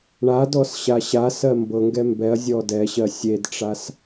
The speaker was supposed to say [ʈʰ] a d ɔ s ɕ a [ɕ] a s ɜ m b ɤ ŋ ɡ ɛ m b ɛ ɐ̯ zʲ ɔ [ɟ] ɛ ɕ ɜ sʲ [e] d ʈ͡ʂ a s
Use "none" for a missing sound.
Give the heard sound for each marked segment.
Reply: ɳ, ɕ, d, e

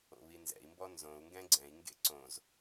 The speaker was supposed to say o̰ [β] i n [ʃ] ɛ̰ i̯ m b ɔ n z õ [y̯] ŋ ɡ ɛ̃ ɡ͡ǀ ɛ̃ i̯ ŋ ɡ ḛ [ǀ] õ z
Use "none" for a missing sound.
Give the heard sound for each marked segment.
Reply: β, z, u̯, ǀ

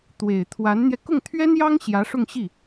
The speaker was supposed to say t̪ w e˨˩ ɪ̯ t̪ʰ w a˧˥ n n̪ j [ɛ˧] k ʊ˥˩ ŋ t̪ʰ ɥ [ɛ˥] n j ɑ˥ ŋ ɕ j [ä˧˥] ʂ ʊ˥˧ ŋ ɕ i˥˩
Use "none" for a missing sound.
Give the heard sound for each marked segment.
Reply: ɛ˧, ɛ˥, ä˧˥

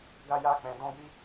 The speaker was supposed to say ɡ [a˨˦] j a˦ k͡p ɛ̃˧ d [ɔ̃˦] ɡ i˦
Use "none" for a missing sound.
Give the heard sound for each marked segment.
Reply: a˦, ɔ̃˦

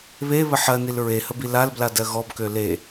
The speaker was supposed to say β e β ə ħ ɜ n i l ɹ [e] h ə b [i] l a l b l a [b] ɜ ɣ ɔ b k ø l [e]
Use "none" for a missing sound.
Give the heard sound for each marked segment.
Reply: e, i, d, e

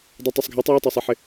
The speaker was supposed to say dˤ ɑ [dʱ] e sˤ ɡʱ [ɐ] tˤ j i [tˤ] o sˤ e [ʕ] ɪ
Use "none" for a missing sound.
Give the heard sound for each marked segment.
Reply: tˤ, a, tˤ, ħ

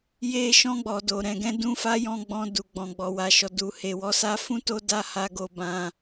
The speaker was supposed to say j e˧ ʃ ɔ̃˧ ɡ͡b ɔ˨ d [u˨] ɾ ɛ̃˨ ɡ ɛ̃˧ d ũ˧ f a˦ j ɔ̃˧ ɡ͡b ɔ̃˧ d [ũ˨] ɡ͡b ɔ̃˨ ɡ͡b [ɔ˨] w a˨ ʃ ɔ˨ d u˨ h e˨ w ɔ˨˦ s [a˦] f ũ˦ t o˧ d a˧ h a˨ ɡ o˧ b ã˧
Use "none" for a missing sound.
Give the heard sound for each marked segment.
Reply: o˨, u˨, ɔ˨, a˦

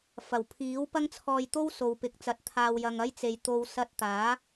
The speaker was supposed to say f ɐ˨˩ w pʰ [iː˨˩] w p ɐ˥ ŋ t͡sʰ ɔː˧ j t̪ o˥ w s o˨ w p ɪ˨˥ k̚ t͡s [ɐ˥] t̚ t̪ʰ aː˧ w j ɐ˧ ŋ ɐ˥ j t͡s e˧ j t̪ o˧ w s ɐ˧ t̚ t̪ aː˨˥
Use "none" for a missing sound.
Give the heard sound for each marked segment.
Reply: iː˨˥, ɐ˨˥

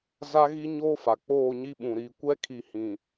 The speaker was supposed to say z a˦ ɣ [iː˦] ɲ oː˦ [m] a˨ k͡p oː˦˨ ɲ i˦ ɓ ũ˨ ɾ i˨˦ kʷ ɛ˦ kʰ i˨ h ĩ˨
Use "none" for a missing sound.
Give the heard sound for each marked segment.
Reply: i˦, f

